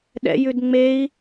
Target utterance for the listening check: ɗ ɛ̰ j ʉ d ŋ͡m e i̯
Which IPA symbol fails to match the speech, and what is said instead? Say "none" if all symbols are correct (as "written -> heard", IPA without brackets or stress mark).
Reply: none